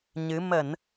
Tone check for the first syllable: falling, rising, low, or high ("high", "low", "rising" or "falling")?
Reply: rising